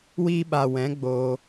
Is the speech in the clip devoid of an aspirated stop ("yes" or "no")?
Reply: yes